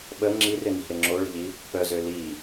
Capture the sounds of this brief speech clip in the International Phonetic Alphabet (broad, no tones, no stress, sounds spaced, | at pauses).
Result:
ɓ ə ŋ͡ǁ i r ɪ n i̤ ɾ ɪ ŋ͡ǁ o ɭ ə̤ ʎ i | p œ z ø l i